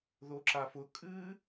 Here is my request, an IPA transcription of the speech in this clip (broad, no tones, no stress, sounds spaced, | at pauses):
ð o ǁ a f ʊ kʼ ɨ